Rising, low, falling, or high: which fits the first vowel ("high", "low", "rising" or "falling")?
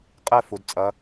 falling